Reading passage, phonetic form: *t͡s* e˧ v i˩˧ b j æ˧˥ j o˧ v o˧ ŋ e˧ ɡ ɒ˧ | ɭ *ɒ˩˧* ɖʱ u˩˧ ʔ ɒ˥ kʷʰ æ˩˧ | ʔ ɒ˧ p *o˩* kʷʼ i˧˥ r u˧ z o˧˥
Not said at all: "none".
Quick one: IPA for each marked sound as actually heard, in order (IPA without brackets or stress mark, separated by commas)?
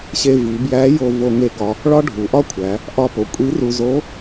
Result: ɕ, ɒ˥, o˩˧